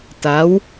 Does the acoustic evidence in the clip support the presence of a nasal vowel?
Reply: no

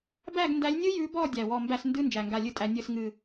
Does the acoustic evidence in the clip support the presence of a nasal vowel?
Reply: no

